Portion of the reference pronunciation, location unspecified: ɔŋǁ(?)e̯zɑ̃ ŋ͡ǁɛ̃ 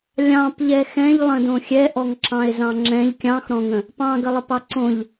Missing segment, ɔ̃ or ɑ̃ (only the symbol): ɑ̃